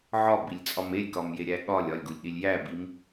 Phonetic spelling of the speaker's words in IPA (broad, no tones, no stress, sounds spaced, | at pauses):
ʕ ɒ b i lʲ t͡sʼ ɒ m e lʲ k ɒ m j e ɾʲ æ ɠ ɒ lʲ ɒ lʲ ɡ u lʲ ɗ i lʲ j æ b i m